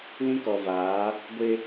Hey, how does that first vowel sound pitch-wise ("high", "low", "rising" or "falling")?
high